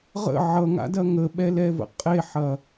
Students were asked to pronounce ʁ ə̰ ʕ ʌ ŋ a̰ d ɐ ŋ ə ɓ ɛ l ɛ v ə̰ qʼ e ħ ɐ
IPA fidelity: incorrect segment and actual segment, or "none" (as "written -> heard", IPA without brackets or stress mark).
none